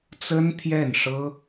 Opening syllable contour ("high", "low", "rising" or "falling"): high